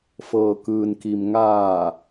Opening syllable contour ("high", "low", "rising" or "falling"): low